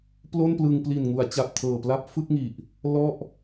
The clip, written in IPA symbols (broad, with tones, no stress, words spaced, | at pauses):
plo˥˩nplɯ˧ŋ pli˨˩nŋu˩˦a̯t͡ɕa˨˩p̚ tʰɤː˨˩pla˦˥p̚ fɯ˥˩k̚ŋi˨˩ʔ | lɔ˥˩ʔ